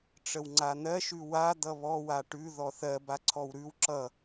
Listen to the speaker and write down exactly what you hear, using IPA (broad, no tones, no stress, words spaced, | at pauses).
ʈ͡ʂəwŋ͡ǀan̪ɜ ʃʉwa d̪ʌβɔ waʈʉ ðɔθɜ baǀʰɔwɾʉw ǁʌ